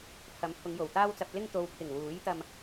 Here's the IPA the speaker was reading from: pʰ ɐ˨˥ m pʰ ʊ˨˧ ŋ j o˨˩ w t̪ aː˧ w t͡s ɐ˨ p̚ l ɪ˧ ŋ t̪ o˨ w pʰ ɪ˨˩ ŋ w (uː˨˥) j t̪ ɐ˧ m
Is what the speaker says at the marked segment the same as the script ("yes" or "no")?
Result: yes